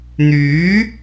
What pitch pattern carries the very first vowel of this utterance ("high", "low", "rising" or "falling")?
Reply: rising